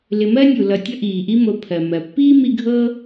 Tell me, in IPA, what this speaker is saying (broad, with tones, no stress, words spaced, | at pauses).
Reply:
lɪ˨mɜ˥nʲu˩ lʌ˨ tʲʌ˦ʔiː˩ʔi˦mo˨ pʰɜ˩mɜ˩ pːiː˥mi˦ɡʱɤ˥